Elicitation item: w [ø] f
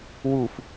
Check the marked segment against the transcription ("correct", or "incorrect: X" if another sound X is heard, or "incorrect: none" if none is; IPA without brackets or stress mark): incorrect: u